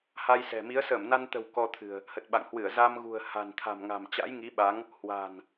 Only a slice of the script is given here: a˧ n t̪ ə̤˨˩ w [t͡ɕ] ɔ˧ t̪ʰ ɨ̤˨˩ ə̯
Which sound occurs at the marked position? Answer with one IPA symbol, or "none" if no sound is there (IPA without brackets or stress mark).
k